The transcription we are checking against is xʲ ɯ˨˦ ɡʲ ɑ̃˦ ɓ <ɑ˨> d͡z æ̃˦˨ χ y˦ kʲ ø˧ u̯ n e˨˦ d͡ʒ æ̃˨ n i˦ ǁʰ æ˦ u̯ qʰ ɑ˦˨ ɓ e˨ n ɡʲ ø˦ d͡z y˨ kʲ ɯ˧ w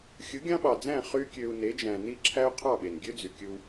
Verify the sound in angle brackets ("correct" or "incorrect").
correct